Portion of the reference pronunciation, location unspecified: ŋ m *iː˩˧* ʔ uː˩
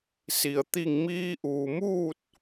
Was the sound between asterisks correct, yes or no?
no